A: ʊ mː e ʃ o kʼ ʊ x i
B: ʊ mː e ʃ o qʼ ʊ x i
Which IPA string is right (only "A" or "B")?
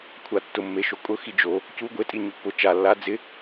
A